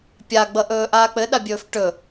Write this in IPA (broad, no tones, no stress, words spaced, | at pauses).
pʲaɡ͡bʌʔɵː ʔaːk͡pɘɗa bʲɵːfʈɵ